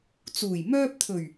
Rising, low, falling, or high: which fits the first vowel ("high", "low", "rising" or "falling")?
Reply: low